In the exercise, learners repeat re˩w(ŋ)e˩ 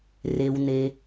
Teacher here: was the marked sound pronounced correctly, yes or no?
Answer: no